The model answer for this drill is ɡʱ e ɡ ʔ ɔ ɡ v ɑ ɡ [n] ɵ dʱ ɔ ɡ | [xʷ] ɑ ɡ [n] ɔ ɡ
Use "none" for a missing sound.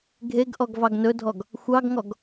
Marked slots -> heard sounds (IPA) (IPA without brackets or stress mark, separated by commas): n, xʷ, ŋ